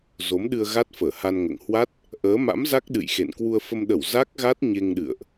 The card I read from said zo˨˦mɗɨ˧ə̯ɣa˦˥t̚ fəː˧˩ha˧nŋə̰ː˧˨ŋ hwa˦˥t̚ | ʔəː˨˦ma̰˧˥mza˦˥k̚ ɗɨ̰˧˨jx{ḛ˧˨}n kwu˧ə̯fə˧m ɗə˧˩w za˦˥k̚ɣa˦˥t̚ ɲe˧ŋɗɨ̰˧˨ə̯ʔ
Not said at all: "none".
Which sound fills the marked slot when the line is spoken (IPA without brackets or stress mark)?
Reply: ḛ˧˨